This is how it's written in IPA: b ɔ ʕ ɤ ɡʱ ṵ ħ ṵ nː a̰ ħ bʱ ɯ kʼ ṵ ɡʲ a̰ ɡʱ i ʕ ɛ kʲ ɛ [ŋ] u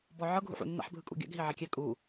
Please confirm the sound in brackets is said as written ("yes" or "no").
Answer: no